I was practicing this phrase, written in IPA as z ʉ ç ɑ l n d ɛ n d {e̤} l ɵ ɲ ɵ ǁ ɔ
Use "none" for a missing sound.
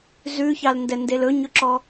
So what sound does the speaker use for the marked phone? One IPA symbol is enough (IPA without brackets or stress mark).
e